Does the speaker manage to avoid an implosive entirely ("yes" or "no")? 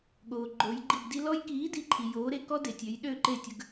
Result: no